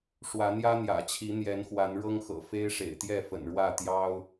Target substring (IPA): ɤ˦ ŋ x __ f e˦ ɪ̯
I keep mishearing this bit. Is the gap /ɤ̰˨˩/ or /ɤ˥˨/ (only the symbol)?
ɤ̰˨˩